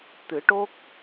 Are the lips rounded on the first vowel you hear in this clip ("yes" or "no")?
no